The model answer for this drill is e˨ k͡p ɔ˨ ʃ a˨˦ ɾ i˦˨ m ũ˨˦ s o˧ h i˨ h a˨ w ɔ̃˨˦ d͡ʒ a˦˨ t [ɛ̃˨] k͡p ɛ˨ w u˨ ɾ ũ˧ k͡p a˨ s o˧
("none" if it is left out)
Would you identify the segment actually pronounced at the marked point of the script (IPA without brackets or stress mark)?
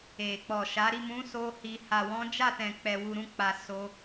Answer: ɛ̃˨